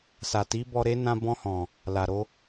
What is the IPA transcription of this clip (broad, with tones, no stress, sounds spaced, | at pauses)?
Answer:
s a˨ t i˨˦ b ɔ˧ ɾ e˦ n ã˧ b ɔ̃˧ h ɔ̃˨ | l a˨ ɾ o˨˦